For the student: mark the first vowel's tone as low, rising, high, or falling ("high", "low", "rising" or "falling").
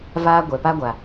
high